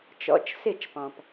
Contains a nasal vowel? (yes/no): yes